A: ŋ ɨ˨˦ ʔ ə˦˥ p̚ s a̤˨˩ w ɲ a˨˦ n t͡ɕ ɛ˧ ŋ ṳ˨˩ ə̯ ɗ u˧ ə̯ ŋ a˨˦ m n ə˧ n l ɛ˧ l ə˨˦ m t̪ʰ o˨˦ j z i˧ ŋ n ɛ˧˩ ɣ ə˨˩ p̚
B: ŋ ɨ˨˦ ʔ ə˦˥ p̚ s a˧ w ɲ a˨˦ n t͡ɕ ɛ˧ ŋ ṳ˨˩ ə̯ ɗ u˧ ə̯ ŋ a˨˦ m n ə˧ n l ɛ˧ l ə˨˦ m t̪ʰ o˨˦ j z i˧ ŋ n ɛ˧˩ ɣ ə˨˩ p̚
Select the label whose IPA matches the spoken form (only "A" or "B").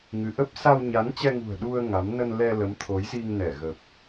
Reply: B